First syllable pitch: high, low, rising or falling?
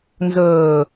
low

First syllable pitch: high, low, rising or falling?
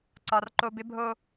low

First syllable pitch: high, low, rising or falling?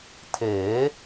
rising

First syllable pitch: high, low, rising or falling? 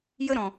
high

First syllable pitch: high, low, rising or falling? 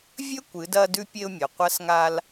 high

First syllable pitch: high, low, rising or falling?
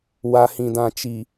low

